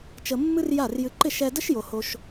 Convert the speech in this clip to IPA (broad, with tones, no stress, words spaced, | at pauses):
t͡ʃə˧mːɨ˥rja˥˩rjɨ˧ ǃɪ˥˩ʃɛ˧də˥ʃjo˩ ho˧ʃ